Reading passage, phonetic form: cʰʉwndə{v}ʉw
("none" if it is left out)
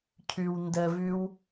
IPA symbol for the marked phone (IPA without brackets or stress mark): v